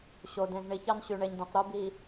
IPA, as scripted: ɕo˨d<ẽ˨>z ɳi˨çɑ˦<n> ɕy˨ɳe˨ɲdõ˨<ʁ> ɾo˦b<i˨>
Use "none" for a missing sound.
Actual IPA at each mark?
ẽ˨, n, q, i˨

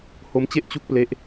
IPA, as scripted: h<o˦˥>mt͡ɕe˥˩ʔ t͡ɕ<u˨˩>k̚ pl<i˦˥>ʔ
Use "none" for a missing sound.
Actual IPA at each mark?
o˦˥, u˥˩, e˦˥

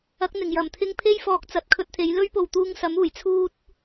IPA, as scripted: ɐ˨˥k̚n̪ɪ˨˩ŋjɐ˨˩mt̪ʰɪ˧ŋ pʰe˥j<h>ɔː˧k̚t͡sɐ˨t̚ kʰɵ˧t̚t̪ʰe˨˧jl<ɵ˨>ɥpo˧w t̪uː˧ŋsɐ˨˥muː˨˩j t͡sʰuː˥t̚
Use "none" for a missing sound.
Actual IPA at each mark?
f, ɵ˥

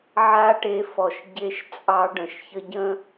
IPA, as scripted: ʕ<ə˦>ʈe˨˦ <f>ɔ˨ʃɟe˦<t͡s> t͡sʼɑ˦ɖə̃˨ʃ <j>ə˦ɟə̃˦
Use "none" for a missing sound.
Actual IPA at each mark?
a˦, f, ʃ, ç

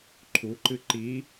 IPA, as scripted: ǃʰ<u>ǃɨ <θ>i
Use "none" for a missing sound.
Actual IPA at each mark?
u, ǃ

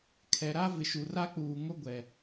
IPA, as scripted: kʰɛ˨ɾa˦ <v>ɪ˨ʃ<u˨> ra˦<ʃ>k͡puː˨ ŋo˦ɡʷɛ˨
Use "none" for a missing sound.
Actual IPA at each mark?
v, u˨, none

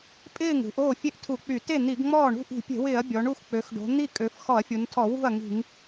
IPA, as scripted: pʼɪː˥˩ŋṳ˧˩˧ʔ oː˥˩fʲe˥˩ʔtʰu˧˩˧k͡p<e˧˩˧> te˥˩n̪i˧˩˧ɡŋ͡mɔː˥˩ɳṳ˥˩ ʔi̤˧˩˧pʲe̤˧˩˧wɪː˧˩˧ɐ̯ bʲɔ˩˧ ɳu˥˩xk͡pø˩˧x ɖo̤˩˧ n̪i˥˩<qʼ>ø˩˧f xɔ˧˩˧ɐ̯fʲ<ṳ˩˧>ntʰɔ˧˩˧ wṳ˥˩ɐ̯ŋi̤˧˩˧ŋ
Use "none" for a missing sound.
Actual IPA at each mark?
y˧˩˧, kʼ, u˩˧

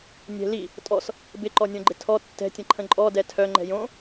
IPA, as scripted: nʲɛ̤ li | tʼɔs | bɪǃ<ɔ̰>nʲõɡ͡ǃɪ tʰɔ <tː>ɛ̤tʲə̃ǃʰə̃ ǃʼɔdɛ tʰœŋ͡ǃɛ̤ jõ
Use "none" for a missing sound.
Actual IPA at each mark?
ɔ, tː

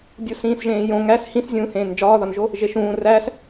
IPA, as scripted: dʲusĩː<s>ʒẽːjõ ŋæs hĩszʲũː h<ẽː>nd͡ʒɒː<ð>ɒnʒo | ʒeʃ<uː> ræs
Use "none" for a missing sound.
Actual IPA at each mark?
s, ẽː, ð, ũː

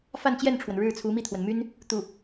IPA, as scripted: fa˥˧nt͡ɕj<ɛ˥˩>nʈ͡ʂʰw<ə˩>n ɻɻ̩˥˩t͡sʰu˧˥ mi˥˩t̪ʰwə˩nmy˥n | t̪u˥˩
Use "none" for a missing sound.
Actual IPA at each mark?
ɛ˥˩, ə˩

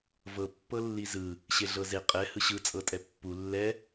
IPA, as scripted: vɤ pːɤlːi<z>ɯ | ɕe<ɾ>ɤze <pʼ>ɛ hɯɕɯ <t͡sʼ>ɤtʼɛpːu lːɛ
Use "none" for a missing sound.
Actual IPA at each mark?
z, ɮ, qʼ, t͡sʼ

